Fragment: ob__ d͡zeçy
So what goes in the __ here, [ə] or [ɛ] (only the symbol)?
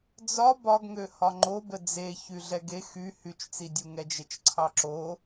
ə